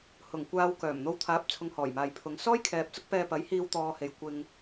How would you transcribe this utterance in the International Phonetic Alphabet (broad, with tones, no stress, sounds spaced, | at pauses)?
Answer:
h ʊ˨˩ ŋ kʷ aː˧ w k œː˨˩ m n̪ o˧ w t̪ʰ aː˨˥ p̚ t͡sʰ ʊ˧ ŋ h ɔː˨˩ j m aː˨ j pʰ ʊ˨˧ ŋ s ɔː˥ j kʰ ɛː˨ p̚ t͡s ʊ˥ k̚ p ɛː˧ p ɐ˨˥ j h iː˧ w t̪ ɔː˧ h e˨˧ j kʷ ɪ˧ ŋ